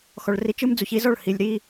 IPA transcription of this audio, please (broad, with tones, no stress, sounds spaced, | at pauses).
x ɔ˨ ɭ r i˨˦ t͡ʃ ɯ˦ m d͡z u˨ ç i˦ z ɔ˦˨ ɭ h i˨ lʲ ɾ i˦